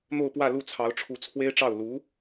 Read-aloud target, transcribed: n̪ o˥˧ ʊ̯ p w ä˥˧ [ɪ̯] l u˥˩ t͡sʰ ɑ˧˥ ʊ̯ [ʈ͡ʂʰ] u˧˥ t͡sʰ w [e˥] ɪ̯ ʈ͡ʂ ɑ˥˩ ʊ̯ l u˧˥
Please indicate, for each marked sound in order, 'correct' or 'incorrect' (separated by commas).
incorrect, correct, correct